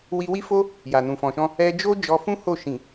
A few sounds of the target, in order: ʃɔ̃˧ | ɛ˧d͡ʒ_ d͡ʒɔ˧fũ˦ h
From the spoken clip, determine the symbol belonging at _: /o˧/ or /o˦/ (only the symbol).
o˦